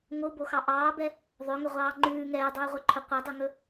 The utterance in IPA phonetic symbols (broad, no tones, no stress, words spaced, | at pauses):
ŋoboxɑ ʔɑːbɛ | ðˤøŋɵʁʷɑː ŋ͡ǃʉː ŋɛːdˤʉːʁʷɛǃʰɵ qʷɛdˤɵŋɵ